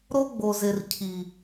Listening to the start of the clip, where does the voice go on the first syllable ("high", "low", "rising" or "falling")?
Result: high